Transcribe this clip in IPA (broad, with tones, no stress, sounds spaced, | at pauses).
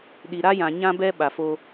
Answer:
ɗ i˨ ɾ a˦ j ã˨ ɲ ã˦ b ɛ˦ ɓ a˨ f o˦